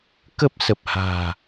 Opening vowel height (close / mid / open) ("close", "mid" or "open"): mid